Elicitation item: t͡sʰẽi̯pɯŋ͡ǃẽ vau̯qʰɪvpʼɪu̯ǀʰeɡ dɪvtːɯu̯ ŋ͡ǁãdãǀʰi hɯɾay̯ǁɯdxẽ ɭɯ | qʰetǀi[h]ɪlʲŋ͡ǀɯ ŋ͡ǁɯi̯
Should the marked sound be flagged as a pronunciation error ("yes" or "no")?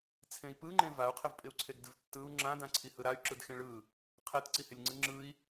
no